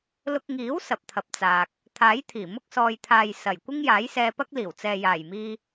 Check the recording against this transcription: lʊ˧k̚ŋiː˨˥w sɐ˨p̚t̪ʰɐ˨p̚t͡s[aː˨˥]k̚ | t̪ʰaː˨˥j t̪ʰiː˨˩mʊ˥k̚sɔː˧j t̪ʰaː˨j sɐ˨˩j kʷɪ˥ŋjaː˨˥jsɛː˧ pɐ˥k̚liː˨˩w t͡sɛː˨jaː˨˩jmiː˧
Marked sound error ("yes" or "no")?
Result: yes